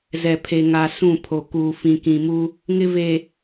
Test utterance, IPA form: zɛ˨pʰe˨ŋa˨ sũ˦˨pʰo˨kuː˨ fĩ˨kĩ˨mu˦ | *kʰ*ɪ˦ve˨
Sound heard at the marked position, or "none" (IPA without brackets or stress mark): ŋ